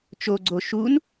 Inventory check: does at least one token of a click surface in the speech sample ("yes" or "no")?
yes